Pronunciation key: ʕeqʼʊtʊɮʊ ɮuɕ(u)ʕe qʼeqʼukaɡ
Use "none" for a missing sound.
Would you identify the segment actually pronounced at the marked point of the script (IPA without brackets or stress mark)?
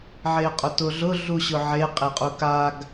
ʊ